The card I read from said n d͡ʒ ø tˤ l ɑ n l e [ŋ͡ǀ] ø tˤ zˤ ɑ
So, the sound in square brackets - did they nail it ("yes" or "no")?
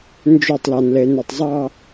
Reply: no